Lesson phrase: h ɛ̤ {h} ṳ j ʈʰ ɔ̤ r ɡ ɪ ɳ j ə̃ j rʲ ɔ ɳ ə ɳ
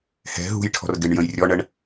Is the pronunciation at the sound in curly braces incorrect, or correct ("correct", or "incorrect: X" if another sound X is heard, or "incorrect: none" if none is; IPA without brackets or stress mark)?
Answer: incorrect: ɦ